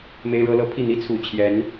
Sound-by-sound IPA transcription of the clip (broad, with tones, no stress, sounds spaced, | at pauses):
m e˥ ɪ̯ ɻ ɤ˥ l ɤ˥ pʰ i˥˩ n̪ i˥ t͡sʰ u˨˩ t͡ɕʰ j ɛ˧˥ n